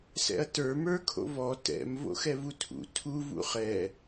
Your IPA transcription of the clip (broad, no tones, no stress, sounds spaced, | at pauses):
s ɛ̰ ɐ̯ t ə˞ m ə˞ kʰ o̰ v ɔ t ɛ̰ m v o̰ x ɛ v u tʰ ṵ tʰ u v ṵ χ ɛ